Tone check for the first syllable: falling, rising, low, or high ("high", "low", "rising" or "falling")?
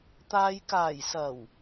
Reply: low